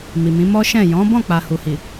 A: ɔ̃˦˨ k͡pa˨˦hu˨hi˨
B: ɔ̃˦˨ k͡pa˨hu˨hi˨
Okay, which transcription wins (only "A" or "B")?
B